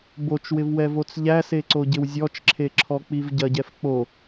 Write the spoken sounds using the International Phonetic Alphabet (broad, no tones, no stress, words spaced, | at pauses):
bot͡ʃwɪv wɛvot͡sʎæse ǀoɟɪwzʲɔt͡ʃǁʰe ǁʰɔk͡pivɟɐɟɛf k͡po